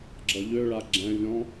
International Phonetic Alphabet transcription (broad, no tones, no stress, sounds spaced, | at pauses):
ɡ͡ǁ ʌ ʎ ø ɭ a ɡ͡ǁ ɛ̃ vʲ ɔ̃